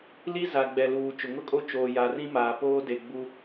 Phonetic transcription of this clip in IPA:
l i˦ z a˨ ɡ͡b ɛ˨ l uː˨ t͡ʃ ʊ˨ ŋ ʊ˦ kʼ o˦ t͡ʃ oː˨ j a˨ r ĩ˦ m aː˨ p oː˦ d e˨ ɡ͡b u˦

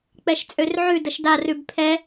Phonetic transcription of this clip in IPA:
k͡p ɛ ʃ t͡sʼ ø r ʕ ʉ d ə ʃ d a r ʉ b pʰ ɛ

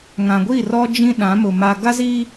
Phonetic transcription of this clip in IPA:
ŋ ã˨ ɡʷ i˦˨ r ɔ˦ d͡ʒ ĩ˦ ɗ ã˨˦ m ʊ˨ m a˨ ɡ a˦ z i˦

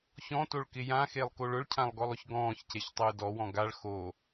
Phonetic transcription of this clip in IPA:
ç ɔ̃ t o ɭ k ɪ j ã x e lˠ k o ɭ ʊ ɭ cʰ ã lˠ ɡ ɔ lˠ ʊ ç ɡ ɔ̃ː ç c e ç tˤ ʊː d ɔ w ɔ̃ ɡ a ɭ x o

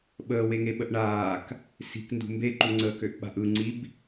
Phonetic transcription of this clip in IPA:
ɓ əː w e ŋ e ɓ ə ʔ ɳ aː k | s i̤ k n d ṳ m b e ǃ u ŋ͡ǀ əː k ø ʔ ɓ a̤ ʔ ɯ ŋ͡ǀ i b

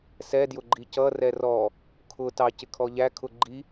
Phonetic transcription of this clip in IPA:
s ɛ d j ʊ ɡ͡ǃ i c ʌ r ɛ r ɔ | kʰ ʊ t ɑ c ɪ kʰ ɔ ʎ æ kʰ ʊ ɡ͡ǃ i

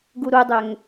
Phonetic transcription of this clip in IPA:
ɡ u ɾ u dˤ ø ŋ

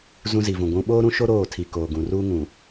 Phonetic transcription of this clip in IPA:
z ũ˦ z i˨ v ũ˨ ɡʷ ũ˦ ɓ oː˦ ɾ ũ˦ ʃ o˦ ɾ oː˦˨ tʰ i˨ k oː˨ ɡ ũ˨ r uː˦ ŋ ũ˨

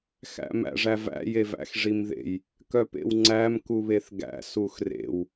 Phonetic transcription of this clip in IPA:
x æ̰ m æ̰ ʐ æ v æ̰ j e v æ̰ x ʐ i m ð ḛ j | k œ p ḛ w ŋ͡ǀ æ m k u β e θ ɡ æ̰ s u x r ḛ w

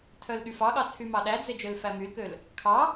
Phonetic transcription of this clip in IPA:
tʰ œ l ɠ y f ɑ ɠ ɑ t͡sʰ y m ɑ ɗ æ d͡z e d͡ʒ ø l f æ m y l k ø l | kʰ ɑ

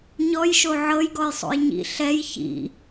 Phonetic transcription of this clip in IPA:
ɲ ɔ j ʃ o ʕ ɤ j ɡ ɔ j sˤ o̰ j ɲ ḭ ɬ ɛ j ç ḭ

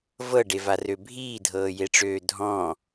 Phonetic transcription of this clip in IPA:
v ɤ ɖ e v a r ø bʱ iː dʱ ɤː j e ʈ͡ʂ øː dʱ ɔ̃

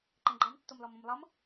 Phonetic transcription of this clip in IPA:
ǃ ɛ̃ ɡ͡ǃ ɑ m tː o m l ɔ m õ m lˠ ʌ m

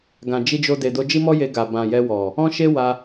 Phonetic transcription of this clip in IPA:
ɡ ã˨ d͡ʒ i˧ d͡ʒ o˧ d e˨ d o˧ d͡ʒ i˦ m ɔ˦ j e˧ ɡ a˨ b ã˨ j ɛ˧ w ɔ˨ | ɔ̃˦ ʃ e˦ w a˧

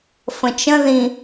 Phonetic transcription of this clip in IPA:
f ə̃ t͡ʃ ə̃ ð ĩ

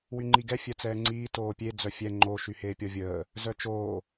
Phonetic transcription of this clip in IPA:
w y ŋ͡ǃ i ɡ ɛ fʲ œ t͡s ɛː ŋ͡ǀ iː t oː pʲ e d͡z œ fʲ ɛ ŋ͡ǃ o ʃ y h eː pʲ ɔ vʲ əː | z œ t͡ʃ oː

